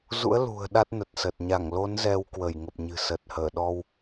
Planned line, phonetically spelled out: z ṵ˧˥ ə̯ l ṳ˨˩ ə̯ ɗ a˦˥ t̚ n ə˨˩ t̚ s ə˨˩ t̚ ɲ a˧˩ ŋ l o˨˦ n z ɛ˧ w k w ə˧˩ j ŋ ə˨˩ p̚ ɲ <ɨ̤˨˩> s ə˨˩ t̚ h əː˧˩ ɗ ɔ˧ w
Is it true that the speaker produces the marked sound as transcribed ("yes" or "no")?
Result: yes